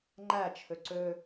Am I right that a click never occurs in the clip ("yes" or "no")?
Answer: no